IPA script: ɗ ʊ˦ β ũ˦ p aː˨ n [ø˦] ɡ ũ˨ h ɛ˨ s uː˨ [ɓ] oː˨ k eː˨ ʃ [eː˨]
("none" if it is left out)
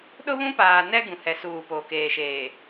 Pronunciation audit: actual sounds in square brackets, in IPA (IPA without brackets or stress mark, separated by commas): ɛ˦, p, eː˨